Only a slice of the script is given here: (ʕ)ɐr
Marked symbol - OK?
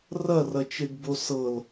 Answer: no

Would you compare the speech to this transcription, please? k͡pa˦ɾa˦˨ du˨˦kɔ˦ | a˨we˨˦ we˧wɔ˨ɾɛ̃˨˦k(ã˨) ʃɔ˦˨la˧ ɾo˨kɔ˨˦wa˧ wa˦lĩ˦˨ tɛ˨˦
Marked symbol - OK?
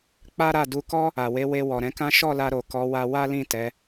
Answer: no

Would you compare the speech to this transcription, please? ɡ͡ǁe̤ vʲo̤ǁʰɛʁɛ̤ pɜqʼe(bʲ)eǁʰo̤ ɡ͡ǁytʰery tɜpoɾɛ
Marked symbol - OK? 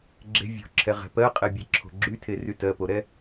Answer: yes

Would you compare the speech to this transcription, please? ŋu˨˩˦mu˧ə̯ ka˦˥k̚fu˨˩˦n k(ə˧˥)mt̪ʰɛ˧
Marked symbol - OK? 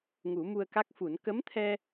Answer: yes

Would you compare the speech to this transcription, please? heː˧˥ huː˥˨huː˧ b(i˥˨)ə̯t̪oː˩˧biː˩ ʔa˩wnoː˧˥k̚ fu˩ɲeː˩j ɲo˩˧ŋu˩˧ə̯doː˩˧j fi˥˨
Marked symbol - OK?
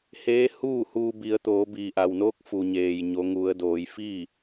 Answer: no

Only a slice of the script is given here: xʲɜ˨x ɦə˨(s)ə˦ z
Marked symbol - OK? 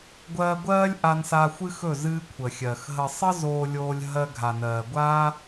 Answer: no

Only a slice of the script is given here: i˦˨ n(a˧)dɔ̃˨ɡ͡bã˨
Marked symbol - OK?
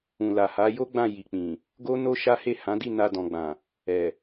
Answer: yes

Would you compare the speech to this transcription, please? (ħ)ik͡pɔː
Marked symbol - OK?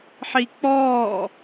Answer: yes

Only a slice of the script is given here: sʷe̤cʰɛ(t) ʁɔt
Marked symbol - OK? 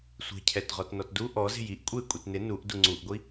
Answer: yes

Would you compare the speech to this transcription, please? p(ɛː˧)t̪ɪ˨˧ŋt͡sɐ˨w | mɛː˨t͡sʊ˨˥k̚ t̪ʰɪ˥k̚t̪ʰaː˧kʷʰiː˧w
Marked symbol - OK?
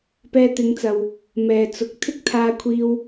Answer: yes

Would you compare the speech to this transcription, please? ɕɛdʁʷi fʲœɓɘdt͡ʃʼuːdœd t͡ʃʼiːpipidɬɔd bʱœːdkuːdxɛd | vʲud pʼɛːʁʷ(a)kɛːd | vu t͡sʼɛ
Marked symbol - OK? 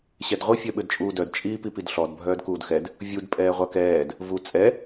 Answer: yes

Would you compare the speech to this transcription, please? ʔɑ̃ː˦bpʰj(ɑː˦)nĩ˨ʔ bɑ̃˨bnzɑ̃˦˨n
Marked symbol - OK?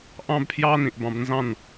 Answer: yes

